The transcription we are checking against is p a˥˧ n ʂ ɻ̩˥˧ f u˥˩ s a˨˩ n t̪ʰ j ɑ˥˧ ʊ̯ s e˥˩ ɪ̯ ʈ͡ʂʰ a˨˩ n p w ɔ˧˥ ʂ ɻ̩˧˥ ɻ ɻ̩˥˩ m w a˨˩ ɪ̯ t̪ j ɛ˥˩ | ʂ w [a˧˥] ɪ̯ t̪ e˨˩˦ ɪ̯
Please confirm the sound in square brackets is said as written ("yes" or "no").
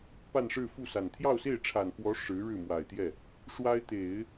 no